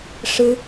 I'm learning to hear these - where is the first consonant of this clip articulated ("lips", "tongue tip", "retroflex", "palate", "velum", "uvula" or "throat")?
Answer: retroflex